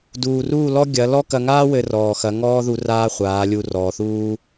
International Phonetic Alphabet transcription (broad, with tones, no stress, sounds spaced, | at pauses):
d uː˨ r uː˦˨ l ɔ˦ ɡʲ ɐ˨˦ l ɔ˦ k ɐ˧ ŋ aː˦ w ɘ˧ r ɔː˨ x ɐ˨˦ ŋ ɔː˦ ð u˧ r aː˦ χʷ aː˨˦ lʲ u˧ r ɔː˨ θ uː˦